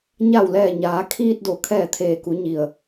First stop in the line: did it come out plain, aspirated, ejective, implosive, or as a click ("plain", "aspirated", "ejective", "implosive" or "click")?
aspirated